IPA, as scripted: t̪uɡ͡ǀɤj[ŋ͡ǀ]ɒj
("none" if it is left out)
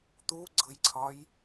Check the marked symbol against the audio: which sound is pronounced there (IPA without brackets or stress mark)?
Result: ǀʰ